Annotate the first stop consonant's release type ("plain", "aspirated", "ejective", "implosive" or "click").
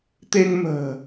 plain